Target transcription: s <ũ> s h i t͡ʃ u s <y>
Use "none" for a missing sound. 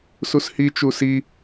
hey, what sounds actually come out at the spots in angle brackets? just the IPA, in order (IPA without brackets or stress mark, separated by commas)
u, i